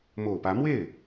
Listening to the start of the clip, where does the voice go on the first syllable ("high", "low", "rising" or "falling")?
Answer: low